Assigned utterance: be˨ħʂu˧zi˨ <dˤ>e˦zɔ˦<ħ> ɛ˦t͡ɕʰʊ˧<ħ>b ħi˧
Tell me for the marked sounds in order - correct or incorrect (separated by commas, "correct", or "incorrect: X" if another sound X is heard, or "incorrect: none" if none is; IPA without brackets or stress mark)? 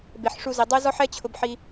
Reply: correct, correct, incorrect: none